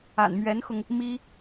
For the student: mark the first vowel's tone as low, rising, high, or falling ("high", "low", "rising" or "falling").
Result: low